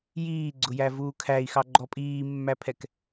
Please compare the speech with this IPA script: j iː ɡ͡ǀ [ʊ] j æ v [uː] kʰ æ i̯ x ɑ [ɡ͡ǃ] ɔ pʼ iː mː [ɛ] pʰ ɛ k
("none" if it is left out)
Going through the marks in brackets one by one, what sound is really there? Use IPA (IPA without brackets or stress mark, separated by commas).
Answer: ʊ, uː, ɡ͡ǃ, æ